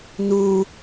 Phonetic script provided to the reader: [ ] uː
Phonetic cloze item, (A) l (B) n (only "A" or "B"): B